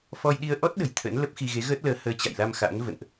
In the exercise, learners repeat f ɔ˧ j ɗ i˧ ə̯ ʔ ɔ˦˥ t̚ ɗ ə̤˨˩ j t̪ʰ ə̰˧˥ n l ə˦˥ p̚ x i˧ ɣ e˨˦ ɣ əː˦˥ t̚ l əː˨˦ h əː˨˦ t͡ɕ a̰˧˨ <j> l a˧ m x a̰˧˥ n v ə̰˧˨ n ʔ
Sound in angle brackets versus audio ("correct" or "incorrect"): correct